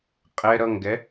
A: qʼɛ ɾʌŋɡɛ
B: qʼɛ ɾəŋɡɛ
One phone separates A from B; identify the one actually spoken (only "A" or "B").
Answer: A